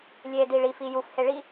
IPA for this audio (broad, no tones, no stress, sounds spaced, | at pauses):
lʲ e d i ɭ i f i j u f h e ɭ i